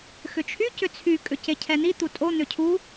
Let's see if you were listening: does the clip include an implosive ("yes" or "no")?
no